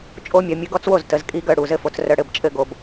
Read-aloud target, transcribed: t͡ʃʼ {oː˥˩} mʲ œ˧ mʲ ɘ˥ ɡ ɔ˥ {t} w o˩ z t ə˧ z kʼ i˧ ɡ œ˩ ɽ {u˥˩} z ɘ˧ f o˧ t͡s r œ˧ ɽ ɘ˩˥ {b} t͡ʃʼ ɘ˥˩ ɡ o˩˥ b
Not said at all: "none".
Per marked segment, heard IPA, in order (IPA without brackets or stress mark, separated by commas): o˥˩, t͡s, u˩˥, b